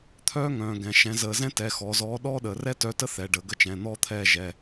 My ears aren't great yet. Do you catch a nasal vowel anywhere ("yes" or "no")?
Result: yes